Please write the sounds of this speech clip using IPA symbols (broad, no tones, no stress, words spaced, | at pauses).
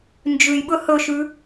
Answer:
nd͡ʒʉjɓɵ hɵʃʉ